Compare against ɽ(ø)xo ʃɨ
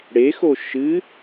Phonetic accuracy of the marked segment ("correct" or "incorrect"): incorrect